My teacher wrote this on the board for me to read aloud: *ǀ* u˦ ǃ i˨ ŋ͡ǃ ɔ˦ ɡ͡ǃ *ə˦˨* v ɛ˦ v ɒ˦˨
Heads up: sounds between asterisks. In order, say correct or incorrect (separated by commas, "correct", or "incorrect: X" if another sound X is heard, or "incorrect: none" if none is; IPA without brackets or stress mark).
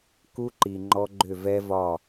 incorrect: k, incorrect: ʏ˦˨